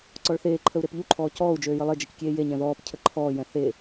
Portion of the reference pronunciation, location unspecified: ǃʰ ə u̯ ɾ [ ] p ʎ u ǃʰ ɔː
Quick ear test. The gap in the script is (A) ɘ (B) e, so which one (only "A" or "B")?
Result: B